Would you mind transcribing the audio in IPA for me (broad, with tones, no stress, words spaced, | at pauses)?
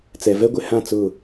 t͡sɛ˨ vɛ˦ɡʷɪ˨hã˦˨ t͡sʊ˦˨